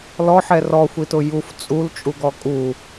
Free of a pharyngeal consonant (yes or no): no